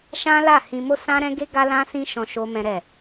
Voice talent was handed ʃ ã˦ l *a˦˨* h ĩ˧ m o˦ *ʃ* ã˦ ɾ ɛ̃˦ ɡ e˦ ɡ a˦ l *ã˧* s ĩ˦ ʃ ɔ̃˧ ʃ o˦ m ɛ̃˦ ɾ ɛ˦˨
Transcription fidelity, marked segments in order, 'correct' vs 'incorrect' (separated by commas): correct, incorrect, incorrect